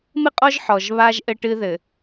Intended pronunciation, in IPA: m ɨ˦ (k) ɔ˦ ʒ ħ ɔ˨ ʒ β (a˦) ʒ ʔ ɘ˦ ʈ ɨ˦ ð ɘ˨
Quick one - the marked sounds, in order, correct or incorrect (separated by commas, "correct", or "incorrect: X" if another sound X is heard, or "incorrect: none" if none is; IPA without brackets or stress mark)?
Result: incorrect: qʼ, correct